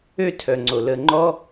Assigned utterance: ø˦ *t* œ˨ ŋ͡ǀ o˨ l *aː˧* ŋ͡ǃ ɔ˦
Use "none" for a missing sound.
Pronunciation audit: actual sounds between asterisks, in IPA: tʰ, əː˧

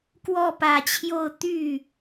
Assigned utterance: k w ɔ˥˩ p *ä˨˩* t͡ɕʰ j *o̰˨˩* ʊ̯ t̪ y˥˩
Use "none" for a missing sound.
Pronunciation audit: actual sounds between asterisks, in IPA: ä˨˩, o˥˧

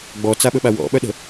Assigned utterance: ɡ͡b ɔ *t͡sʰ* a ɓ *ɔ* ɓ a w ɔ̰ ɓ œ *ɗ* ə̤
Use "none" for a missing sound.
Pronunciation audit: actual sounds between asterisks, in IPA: t͡s, ɵ, ɗ

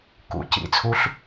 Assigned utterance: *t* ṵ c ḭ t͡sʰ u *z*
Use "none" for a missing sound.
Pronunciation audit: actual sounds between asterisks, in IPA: k, ɬ

